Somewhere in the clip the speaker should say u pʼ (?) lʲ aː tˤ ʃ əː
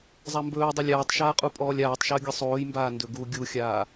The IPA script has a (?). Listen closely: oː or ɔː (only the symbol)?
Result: ɔː